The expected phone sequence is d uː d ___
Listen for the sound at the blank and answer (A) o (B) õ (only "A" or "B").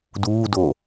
A